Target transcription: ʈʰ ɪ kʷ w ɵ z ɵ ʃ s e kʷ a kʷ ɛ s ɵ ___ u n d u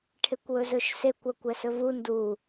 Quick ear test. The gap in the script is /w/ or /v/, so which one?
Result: v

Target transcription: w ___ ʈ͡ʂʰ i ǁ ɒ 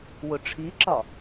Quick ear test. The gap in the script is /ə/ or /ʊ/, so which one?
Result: ʊ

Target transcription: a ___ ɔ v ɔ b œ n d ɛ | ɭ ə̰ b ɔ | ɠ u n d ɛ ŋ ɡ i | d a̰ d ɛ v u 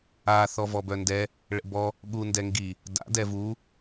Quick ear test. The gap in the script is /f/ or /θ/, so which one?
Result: θ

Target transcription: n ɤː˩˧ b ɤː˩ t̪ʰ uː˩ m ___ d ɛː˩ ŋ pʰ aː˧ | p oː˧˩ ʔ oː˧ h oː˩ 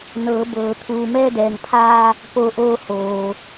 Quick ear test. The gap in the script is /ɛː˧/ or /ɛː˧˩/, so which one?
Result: ɛː˧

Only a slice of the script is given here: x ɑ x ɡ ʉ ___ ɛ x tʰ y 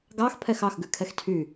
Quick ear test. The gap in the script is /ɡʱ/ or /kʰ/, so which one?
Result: kʰ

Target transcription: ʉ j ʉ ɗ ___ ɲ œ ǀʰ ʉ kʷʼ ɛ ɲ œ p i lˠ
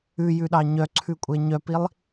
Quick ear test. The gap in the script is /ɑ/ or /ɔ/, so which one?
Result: ɑ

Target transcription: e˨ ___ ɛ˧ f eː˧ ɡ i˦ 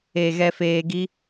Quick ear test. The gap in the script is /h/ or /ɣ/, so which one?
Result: ɣ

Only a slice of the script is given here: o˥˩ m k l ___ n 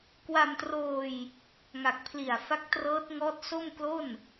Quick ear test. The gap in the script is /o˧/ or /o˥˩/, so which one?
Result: o˥˩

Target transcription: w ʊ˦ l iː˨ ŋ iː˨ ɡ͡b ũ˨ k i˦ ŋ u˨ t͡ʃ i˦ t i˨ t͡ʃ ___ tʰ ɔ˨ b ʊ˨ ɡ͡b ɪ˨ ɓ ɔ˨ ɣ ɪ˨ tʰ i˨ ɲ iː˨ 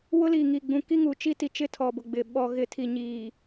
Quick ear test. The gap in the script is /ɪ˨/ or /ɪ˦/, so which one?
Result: ɪ˦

